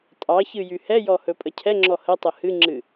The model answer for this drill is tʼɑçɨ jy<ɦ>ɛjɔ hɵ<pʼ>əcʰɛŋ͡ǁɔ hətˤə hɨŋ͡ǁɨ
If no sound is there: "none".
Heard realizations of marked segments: h, pʼ

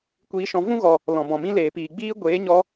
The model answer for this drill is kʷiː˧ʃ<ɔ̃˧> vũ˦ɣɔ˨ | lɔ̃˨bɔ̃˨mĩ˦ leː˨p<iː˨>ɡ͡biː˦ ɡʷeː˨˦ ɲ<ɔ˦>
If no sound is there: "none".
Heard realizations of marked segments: ɔ̃˧, iː˨, ɔ˦

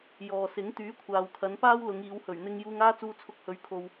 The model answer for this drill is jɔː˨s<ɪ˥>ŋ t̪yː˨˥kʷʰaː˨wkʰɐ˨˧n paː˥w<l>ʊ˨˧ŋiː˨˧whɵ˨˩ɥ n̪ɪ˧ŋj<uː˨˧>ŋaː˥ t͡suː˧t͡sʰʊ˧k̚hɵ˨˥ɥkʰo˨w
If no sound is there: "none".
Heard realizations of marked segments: ɪ˨˥, l, uː˧

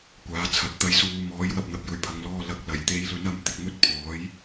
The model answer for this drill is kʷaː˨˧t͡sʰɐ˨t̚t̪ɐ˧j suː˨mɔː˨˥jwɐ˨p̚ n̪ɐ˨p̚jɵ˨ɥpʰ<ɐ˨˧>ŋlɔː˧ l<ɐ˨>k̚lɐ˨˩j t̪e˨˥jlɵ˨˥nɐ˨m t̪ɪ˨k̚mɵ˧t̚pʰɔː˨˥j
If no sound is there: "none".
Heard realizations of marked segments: ɐ˨˧, ɐ˨˥

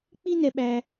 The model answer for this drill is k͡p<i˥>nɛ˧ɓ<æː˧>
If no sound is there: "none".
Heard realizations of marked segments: i˥, æː˧

